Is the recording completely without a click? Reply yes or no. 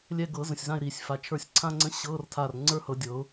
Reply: no